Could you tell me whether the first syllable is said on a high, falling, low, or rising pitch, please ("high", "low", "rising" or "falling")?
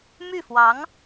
falling